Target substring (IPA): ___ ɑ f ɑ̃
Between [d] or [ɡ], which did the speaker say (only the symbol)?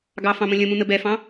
ɡ